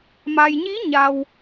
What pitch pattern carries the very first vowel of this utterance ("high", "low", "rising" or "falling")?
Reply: low